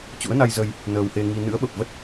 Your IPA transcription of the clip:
t͡ɕ ṵ˧˥ ə̯ n a˧ j z ə˧ j | n əː˧ w h e˧ ŋ i˧ n ɨ̰˧˥ ə̯ ɓ ə˨˩ p̚ v ə˦˥ t̚

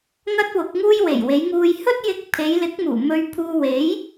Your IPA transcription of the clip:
ŋ ɐ˥ t̚ w ʊ˨˥ k̚ ŋ uː˥ j w e˨˩ j w e˨˧ j ŋ uː˧ j h ɵ˥ t̚ j ɪ˧ k̚ pʰ e˨˧ j l ɪ˨˥ k̚ m uː˨˩ m ɵ˧ ɥ pʰ uː˧ w e˨˥ j

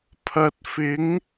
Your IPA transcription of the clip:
pʰ ɐ˨ t̚ f ɪ˨˥ ŋ

